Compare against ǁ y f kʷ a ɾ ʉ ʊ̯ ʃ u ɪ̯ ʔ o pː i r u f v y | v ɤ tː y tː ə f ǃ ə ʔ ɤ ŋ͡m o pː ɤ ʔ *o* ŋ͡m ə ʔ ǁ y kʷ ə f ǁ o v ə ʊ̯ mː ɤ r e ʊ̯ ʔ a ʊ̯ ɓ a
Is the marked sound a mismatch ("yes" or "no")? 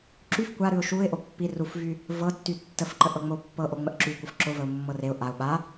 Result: no